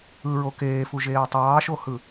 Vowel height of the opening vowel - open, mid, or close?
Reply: close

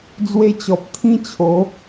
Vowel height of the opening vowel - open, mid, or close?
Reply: mid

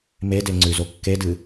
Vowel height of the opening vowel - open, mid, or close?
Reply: mid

